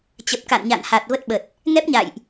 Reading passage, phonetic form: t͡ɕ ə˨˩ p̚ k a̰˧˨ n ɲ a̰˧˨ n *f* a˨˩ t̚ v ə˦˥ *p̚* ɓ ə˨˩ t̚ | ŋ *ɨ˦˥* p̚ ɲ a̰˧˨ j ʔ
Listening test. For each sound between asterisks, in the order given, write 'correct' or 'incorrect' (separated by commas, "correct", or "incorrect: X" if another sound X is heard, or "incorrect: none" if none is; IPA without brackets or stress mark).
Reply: incorrect: h, incorrect: t̚, incorrect: ɛ˦˥